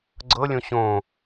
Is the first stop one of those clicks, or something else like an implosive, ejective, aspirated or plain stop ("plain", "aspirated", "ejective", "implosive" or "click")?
click